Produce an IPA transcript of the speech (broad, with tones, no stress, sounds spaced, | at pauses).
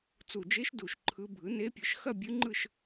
t͡s u˨˩ d͡ʒ e˧˥ ʃ d u˨˩ ʃ ǃʰ ɯ˧˥ bʱ ɯ˩˥ n e˧˥ pʲ ɯ˩˥ ʃ x ɐ˥˧ bʲ ʉ˧˥ ŋ͡ǃ ɯ˥˧ ʃ